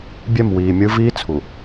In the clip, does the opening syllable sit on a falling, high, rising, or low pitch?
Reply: falling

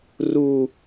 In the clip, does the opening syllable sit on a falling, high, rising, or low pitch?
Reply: low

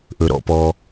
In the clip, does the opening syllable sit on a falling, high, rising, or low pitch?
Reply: low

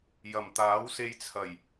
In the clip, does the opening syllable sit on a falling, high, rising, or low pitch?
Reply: low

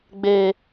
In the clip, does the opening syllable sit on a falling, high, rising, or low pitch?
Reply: high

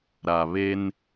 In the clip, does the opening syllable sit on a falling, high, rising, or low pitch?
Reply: low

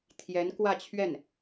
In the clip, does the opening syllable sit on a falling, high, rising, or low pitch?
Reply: rising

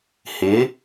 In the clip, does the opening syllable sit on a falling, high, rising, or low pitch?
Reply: rising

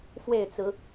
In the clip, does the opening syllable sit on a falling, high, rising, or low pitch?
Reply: falling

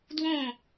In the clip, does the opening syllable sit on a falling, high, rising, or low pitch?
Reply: falling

